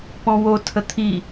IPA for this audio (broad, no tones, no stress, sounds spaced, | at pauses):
p ɔ̃ w o tʰ ə t̪ʰ i